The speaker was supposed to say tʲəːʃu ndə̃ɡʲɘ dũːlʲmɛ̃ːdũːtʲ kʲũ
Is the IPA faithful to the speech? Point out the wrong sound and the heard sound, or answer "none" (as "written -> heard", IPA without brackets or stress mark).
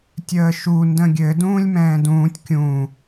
none